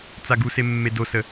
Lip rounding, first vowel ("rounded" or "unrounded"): unrounded